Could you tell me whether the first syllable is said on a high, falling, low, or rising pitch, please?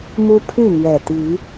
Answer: high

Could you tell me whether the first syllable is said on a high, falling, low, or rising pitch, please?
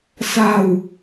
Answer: low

